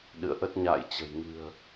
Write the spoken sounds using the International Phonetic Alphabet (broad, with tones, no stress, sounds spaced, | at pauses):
ɗ ɨ̰˧˨ ə̯ ʔ ə˦˥ t̚ ɲ a̰ː˧˨ j t͡ɕ ə̤˨˩ j ŋ ɨ̤˨˩ ə̯